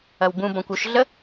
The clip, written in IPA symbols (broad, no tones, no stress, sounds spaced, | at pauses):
ɐ w b ũ b ɔ̃ kʷ u ʃ ɮ ə